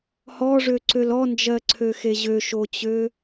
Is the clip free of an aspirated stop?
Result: no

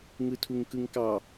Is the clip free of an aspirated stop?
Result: no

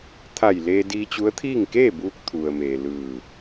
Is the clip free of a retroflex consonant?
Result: yes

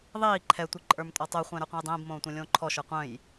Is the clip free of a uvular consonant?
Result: no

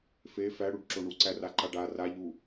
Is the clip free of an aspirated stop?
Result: yes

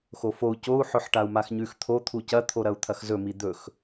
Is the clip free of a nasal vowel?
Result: yes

